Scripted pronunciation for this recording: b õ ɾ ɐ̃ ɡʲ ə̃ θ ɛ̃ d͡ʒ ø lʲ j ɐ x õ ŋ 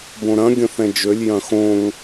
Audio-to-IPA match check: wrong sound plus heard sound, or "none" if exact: ɐ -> ɐ̃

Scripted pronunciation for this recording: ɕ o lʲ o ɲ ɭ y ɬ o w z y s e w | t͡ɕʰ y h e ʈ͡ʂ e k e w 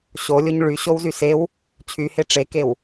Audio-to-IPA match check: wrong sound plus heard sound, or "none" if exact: ɬ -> ɕ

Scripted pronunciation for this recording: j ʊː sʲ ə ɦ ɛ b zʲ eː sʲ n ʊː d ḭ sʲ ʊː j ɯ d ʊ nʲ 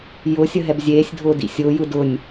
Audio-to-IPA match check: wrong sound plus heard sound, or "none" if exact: n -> dʱ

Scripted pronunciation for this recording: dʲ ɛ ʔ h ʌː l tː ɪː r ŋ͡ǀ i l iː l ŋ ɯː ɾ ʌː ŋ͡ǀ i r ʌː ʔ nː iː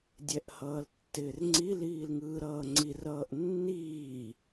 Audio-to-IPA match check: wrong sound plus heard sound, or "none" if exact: none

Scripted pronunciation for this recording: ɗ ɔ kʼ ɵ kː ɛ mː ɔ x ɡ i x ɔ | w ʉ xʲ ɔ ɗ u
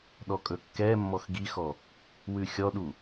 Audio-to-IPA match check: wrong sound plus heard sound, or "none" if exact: none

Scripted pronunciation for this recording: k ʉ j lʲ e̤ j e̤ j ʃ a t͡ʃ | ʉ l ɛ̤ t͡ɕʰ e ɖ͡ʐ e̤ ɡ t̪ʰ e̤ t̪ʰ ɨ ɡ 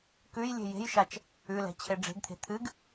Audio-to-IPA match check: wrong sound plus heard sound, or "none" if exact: none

